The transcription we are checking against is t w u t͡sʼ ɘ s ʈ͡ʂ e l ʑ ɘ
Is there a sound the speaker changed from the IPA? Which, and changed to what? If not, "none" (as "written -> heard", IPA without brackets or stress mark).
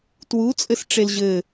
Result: none